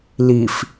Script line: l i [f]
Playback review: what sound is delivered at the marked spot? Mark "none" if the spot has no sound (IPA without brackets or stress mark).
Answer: f